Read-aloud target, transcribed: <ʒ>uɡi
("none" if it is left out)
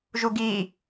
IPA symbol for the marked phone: ʒ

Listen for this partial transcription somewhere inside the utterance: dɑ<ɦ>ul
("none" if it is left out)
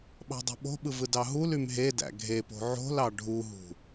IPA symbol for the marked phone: ɦ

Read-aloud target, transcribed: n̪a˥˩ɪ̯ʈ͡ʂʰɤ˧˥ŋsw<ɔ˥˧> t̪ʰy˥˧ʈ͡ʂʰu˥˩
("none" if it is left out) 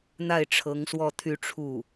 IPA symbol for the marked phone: ɔ˥˧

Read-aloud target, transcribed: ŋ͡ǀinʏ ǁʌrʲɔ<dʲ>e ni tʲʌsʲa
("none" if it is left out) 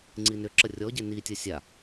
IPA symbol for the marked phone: ɟ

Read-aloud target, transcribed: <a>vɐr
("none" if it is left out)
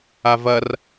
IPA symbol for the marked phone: a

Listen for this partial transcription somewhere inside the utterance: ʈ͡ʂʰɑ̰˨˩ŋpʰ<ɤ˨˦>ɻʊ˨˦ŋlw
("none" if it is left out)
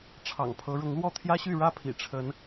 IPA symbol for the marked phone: ɤ˨˦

